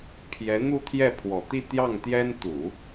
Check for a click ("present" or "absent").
absent